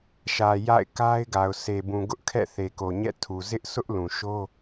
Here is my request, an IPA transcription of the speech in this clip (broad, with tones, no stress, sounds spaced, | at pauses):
ʃ ä˨ j a̰˦˨ ɪ̯ k a˦ ɪ̯ ɡ a˨ ʊ̯ sʰ e˨ b ũ˨ ɡ ʊ˦ ʔ kʰ ɛ̰˦˨ θ e˨ k o˨ ɲ ɛ̰˦˨ tʰ u˨ z ɪ˦ ʔ sʰ ʊ˦ ʔ l ũ˨ ʃ o˦